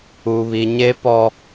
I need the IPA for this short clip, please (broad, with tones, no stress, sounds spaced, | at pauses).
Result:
u˦ β i˦ ɲ e˦ p ɔ˦